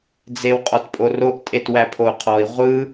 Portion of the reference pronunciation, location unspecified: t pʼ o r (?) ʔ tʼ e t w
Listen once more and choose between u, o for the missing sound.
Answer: o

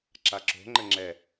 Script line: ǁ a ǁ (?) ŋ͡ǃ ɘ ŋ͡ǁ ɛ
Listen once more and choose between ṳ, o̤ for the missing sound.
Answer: o̤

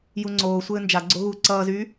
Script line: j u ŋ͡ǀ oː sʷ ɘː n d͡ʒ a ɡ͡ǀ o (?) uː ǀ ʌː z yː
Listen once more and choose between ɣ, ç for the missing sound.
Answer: ɣ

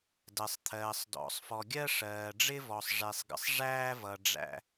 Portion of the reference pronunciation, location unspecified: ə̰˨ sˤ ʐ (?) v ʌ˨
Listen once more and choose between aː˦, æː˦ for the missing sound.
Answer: æː˦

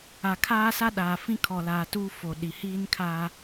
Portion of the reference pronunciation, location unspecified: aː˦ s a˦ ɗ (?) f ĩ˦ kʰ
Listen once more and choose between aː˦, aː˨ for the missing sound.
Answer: aː˨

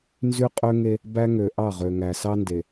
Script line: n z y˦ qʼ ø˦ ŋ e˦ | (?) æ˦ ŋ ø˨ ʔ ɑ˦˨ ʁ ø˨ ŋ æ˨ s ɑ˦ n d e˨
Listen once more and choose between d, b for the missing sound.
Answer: b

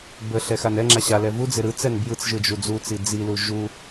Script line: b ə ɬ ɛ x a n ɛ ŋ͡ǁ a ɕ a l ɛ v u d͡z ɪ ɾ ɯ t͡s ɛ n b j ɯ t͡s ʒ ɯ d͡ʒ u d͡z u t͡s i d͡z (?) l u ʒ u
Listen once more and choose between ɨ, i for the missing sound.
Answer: i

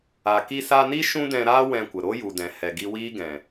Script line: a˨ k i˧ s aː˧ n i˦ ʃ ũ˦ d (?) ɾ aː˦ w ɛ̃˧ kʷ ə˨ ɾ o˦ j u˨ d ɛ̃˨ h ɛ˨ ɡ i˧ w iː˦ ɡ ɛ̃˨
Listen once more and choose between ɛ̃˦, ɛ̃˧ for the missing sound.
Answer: ɛ̃˧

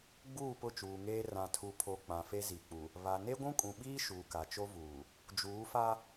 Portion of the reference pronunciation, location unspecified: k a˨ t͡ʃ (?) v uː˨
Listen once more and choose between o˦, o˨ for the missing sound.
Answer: o˦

